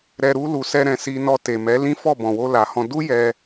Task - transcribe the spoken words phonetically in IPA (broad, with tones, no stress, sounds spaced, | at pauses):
ɾ ɛ˧ ɾ u˧ l u˨ s ɛ˧ ɾ ɛ̃˨ s i˧ n ɔ˧ t e˨ m ɛ˨˦ l ĩ˦ f ɔ˦˨ b ɔ̃˨ w o˧ l a˨ h ɔ̃˧ d u˦ j ɛ˧